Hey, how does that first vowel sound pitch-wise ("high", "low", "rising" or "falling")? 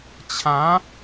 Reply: rising